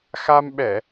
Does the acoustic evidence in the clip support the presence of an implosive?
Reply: yes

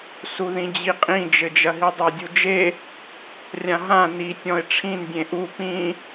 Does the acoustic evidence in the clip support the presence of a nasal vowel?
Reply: yes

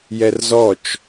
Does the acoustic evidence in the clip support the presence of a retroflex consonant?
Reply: no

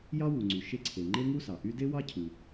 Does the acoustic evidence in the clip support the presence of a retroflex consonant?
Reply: no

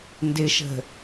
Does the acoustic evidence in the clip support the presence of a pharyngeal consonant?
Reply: no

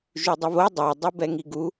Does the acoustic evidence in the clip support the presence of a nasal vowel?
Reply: no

